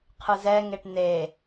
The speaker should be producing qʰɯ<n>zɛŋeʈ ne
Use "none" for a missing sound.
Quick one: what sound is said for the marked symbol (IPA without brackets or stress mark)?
none